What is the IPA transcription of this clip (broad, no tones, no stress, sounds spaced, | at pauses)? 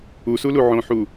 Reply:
u s u l u ʕ õ ħ u